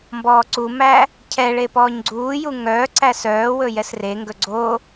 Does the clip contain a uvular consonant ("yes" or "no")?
no